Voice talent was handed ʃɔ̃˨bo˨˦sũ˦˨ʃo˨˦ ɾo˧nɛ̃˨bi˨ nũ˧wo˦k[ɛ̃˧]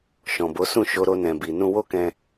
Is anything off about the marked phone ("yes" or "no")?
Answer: no